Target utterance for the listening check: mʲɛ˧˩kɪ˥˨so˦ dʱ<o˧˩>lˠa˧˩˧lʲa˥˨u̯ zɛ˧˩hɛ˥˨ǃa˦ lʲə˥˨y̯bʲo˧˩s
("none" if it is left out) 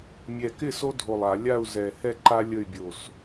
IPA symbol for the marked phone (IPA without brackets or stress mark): o˧˩